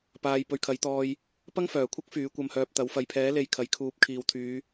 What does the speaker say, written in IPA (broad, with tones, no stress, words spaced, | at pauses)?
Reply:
paː˧j pɵ˧ɥkʰɐ˨˥jt̪ɔː˧j | pɐ˥ŋfœː˨˩kʷʰɐ˥k̚ fyː˨˥ kʷɐ˧mhœː˧p̚t̪ɐ˨˥w fɐ˨jpʰɛː˨˥le˨˧j kʰɐ˨jkʰuː˨˥p̚ kʰiː˨wt̪ʰyː˨˧